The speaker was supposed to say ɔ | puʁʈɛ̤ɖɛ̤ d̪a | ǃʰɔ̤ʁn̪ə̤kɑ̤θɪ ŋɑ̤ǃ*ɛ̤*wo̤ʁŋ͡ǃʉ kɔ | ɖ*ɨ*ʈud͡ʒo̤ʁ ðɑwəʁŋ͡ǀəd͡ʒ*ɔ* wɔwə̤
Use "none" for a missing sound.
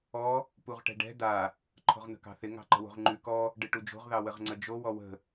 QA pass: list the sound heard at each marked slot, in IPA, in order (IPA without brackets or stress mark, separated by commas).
ə̤, ɨ, o